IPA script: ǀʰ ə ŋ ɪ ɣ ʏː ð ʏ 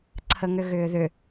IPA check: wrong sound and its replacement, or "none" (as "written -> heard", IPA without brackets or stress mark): ɪ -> ʏ